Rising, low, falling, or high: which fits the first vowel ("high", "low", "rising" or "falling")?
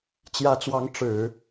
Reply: rising